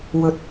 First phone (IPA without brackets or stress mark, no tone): w